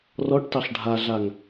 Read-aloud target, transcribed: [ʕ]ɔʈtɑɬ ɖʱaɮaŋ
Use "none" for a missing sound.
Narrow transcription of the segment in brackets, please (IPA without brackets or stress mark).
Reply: r